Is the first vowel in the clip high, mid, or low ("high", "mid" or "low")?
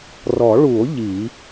mid